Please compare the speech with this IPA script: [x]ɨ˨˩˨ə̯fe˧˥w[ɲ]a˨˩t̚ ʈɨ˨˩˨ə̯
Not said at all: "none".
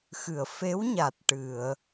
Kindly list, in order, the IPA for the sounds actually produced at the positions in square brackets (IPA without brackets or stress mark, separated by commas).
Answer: x, ɲ